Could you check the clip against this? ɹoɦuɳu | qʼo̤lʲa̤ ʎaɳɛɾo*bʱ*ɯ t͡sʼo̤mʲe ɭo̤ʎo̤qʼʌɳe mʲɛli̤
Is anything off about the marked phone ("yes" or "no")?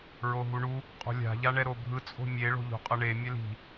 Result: no